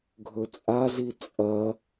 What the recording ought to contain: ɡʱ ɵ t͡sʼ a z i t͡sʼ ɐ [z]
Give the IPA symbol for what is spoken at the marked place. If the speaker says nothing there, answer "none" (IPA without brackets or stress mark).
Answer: none